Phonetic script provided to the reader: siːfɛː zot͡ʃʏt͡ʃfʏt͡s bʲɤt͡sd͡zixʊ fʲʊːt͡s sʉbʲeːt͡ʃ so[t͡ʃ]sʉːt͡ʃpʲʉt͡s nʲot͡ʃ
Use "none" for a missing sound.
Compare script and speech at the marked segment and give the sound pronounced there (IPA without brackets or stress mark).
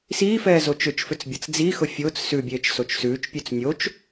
t͡ʃ